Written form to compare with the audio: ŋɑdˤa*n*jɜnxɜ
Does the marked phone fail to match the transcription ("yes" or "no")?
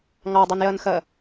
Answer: no